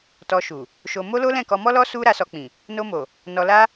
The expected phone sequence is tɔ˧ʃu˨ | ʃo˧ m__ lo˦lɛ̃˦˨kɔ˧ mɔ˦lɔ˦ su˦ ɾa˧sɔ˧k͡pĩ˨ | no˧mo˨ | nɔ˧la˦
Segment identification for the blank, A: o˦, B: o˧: A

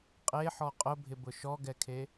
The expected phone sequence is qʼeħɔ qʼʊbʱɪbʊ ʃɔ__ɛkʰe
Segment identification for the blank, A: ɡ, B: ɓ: A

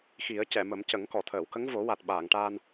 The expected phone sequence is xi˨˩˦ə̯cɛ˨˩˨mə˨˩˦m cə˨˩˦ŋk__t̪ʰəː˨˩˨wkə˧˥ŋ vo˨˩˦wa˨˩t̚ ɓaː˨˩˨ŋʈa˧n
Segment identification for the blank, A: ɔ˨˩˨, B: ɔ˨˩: A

